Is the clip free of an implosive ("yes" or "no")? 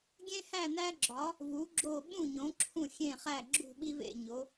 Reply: no